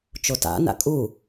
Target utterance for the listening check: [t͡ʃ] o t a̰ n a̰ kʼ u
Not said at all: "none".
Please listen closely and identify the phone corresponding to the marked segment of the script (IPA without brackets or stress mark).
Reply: t͡ʃ